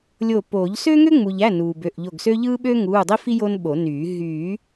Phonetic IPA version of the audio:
lʲ o˧˩ p oː˨˩˦ ʎ s ø˥ ŋ ø˥ ŋ͡m u˩ ʎ æ˩˧˩ n uː˩ b ø˩˧˩ ʔ ʎ o˧˩ ɡ s ø˥ ʎ ɯː˥ ɓ ø˥ ŋ uː˩˧˩ dˤ i˥ f i˥ j o˥ n ɓ o˨˩˦ n yː˨˩˦ ɦ yː˨˩˦

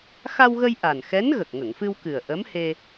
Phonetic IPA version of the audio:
x a˧ w ɣ ə˧ j ʔ a˨˩ n x ɛ˧˥ n ɣ ə˨˩ k̚ ŋ ə˨˩˨ ŋ f ɨ˧ w k ɨ˨˩ ə̯ ʔ ə˧˥ m h e˧

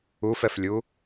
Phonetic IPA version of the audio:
u f ɛ f lʲ u

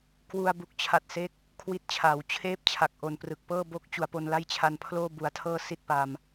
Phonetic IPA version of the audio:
k w u˧ a̯ b u˨˩ k̚ t͡ɕʰ a˨˩ t̚ s e˦˥ k̚ | kʰ w i˥˩ t̚ t͡ɕʰ aː˩˦ w t͡ɕʰ eː˥˩ p̚ t͡ɕʰ a˨˩ k̚ ʔ o˨˩ n p r ɯ˨˩ k̚ p ɤː˥˩ b o˥˩ k̚ t͡ɕ u˩˦ a̯ p o˧ n l a˥˩ j t͡ɕʰ a˧ n pʰ l oː˥˩ b u˨˩ a̯ tʰ ɤː˥˩ s i˥˩ t̚ p a˧ m

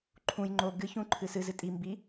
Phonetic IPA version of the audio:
ǃʰ ũ j ŋ͡ǃ o ɡ ɨ ç ũ ǃʰ ɨ s ɨ z ɨ tʼ i m b i

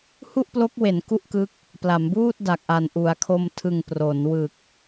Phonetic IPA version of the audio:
h u˥˩ ʔ p l o˦˥ k̚ w e˩˦ n k u˥˩ ʔ k ɯ˦˥ k̚ | p l a˩˦ m b uː˥˩ t̚ d a˨˩ k̚ ʔ a˨˩ n ʔ u˩˦ a̯ kʰ o˧ m tʰ ɯ˨˩ ŋ p r o˩˦ n w ɯ˨˩ k̚

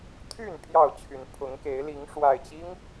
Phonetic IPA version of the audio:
t̪ʰ y˥˨ n pʰ j ɑ˥˨ ʊ̯ t͡ɕʰ y˨˦ n pʰ ʊ˨˦ ŋ k e˨˦ ɪ̯ l i˨˦ ŋ ʂ w a˨˩ ɪ̯ t͡ɕ i˦ ŋ

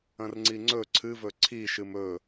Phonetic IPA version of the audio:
ɐ̃ r ŋ͡ǀ i ŋ͡ǀ ɵ ǀʰ ɨ v ɵ ǀʰ i ʃ ɨ m ɵ

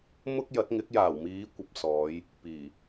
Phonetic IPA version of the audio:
m ʊ˥ k̚ j ɐ˨˥ t̚ ŋ ɪ˨˥ k̚ j aː˨˩ w m iː˨˧ kʷ ɐ˨ p̚ s ɔː˨˧ j | p iː˨˩

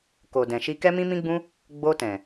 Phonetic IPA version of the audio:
k o˨ d ɛ̃˨ ʃ i˧ k ɛ˦ m ĩ˦ m ĩ˦ ɡ͡b ũ˦ | ɡ͡b o˧ t ɛ̃˨

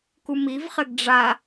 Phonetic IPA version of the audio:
k u m i v χ ɘ ɡ ɖ͡ʐ a

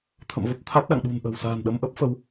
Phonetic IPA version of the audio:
t̪ʰ ə̰˧˨ m v ə˦˥ p̚ t̪ʰ a˦˥ t̚ ɗ a̰˧˨ ŋ ɗ ṳ˨˩ n ʔ ə̤˨˩ w s a̤ː˨˩ n ɗ ə˧ m ʔ ə˦˥ p̚ f ə˨˦ w

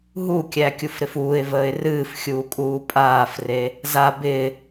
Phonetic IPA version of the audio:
ɦ u kʲ æ kʲ u f ɾ ɪ f uː ɪ̯ v əː ɪ̯ r ɨː f xʲ uː kʼ uː pʼ aː f r e | z a b ɪː

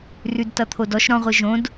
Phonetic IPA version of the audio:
r ʉ d t ʌ t̪ʰ o d ɔ ʃ ɾ ɔ̃ ʁʷ ɯ ʒ õ d

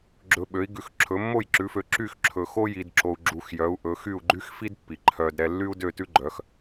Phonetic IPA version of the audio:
ɡ͡ǁ ɵ˧ ɓ ø˨˥ i̯ ɡ ʉ˨˥ x ǁʰ ɵ˨˥ mː o˥˨ j ǁ ʉ˨˥ f ø˨˥ ǁ y˥˨ x ǁʰ ɵ˧ x o˥ j i˧ d ǁ o˧ u̯ ɡ͡ǁ u˧ x j œ˨˥ u̯ ʔ ɵ˨˥ x y˥˨ u̯ ɡ͡ǃ y˥ x f i˥ d pː i˨˩ ǃʰ œ˧ d ɾ ɛ˧ lː y˥ u̯ d ø˥˨ t ʉ˥ ɡ͡ǃ œ˨˥ x

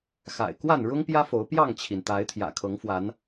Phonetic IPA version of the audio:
x a̰˨˩ ɪ̯ k w a˥˨ n ɻ ʊ˦ ŋ p j ä˦ f o˨˦ ʊ̯ p j ɑ˥˨ ŋ t͡ɕʰ i˩ n t̪ a˨˦ ɪ̯ t̪ʰ j ä̰˨˩ kʰ ɤ˨˦ ŋ f w a˨˦ n

